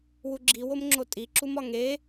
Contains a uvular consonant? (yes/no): no